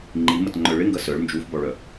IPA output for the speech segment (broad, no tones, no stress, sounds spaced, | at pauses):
ŋ͡ǃ i m ɐ t ŋ͡ǃ œ ɭ ɪ ŋ ɡ ɐ s œ ɭ n d͡ʒ u f b ɔ ɭ œ